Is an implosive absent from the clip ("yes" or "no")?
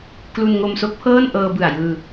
yes